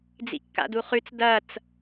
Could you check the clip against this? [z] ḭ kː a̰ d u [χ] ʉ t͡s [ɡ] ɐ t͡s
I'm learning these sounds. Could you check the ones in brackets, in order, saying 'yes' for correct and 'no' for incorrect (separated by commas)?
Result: no, yes, no